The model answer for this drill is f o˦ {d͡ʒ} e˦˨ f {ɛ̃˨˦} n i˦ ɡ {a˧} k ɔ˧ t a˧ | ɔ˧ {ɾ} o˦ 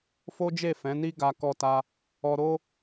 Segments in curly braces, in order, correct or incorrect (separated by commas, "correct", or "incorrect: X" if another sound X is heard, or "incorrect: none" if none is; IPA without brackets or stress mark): correct, correct, correct, correct